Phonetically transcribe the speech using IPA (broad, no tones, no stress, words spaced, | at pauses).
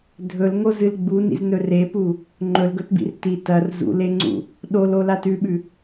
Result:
dʱɵlŋozɨl ɡ͡bunḭznɵ repu | ŋ͡ǃɵlɡɵtbḭr ti tɐr zṵleŋ͡ǀṵ | ɗololat ʉɓʉ